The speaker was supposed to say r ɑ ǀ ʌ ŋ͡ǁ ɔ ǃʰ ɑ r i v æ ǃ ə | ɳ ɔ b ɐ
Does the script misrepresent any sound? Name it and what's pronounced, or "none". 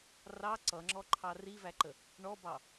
ɐ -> ɑ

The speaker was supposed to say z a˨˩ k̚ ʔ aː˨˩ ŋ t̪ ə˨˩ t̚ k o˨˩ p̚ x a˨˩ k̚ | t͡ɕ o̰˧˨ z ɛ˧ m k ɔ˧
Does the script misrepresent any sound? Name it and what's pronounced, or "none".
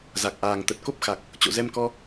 o˨˩ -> o˦˥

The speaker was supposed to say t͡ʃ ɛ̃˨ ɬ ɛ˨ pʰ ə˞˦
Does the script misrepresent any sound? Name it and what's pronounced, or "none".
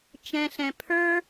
ɛ˨ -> ɛ̃˨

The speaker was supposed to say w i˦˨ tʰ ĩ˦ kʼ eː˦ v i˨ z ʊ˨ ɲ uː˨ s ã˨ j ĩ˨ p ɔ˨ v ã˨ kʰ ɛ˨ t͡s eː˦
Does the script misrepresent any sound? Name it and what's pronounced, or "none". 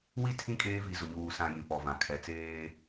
none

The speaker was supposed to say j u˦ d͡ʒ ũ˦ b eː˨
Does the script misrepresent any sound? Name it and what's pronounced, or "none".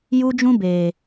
none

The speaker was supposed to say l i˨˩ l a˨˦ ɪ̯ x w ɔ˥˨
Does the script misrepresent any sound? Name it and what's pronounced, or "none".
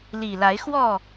none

